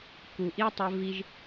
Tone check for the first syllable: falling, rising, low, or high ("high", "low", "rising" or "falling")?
low